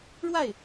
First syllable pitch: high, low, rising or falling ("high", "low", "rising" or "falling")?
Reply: falling